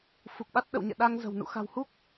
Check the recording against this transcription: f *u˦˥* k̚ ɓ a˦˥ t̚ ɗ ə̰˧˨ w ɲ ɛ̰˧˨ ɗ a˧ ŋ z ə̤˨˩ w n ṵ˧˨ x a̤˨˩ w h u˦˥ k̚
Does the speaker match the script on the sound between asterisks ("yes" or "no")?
no